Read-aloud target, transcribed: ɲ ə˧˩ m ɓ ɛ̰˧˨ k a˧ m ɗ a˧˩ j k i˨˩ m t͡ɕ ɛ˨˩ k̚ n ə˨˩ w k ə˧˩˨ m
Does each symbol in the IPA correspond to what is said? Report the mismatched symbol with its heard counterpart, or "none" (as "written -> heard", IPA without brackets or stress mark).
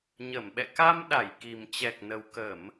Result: none